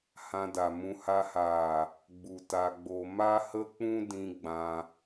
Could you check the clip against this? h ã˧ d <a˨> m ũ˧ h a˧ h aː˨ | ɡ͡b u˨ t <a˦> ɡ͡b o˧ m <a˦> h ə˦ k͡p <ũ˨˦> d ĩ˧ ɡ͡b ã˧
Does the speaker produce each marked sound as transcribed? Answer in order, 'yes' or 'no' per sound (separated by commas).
yes, no, yes, no